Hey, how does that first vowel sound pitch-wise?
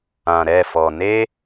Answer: low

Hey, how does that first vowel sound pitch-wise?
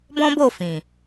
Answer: high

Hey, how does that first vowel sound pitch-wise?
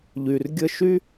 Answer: low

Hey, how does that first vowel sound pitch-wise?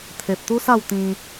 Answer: low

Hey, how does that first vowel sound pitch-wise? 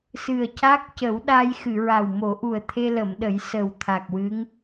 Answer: low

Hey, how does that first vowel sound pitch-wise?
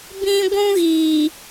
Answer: high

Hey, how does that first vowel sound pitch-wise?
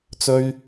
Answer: high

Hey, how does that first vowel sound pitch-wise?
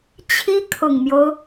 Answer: high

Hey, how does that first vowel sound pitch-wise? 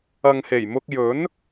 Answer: low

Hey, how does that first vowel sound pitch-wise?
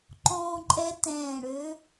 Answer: high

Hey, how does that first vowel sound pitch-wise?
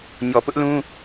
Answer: low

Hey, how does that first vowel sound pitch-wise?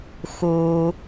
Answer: low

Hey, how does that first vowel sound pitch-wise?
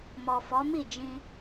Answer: low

